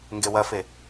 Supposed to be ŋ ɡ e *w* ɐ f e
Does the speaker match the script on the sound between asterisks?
yes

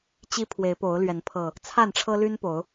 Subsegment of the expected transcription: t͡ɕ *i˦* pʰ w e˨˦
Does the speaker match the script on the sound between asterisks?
yes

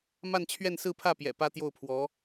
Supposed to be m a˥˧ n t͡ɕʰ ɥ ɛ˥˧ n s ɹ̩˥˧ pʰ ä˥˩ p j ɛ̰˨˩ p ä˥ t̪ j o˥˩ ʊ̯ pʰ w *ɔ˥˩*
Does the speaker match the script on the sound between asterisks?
no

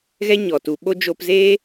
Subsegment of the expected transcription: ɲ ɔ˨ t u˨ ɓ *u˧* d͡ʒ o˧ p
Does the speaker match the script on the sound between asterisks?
no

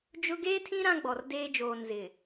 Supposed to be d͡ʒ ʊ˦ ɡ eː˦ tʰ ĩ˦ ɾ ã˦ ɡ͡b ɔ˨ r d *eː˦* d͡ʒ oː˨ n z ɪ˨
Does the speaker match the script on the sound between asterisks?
yes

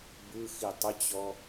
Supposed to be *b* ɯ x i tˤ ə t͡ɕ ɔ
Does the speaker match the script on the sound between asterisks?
yes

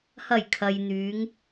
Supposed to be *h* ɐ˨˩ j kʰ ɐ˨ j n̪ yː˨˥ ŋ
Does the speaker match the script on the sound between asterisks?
yes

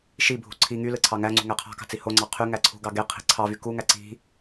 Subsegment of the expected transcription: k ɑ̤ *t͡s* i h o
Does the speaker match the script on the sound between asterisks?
yes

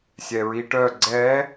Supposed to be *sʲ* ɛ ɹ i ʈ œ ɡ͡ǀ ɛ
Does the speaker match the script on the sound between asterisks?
yes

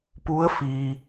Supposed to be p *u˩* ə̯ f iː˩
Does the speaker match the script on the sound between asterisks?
no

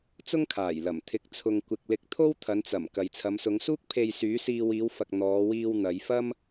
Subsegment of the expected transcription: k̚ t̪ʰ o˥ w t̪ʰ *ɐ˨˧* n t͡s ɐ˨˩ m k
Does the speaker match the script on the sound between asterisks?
yes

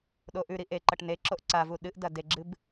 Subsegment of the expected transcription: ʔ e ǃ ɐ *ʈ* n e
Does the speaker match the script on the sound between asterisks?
yes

